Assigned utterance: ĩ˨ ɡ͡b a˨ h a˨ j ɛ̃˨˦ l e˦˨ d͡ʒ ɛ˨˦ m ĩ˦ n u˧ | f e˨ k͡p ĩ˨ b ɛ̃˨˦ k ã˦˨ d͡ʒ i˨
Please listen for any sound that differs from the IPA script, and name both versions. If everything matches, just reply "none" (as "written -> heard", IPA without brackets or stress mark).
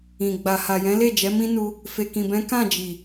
k͡p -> k